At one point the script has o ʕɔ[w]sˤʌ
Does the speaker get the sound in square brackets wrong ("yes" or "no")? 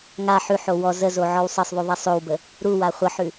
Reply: no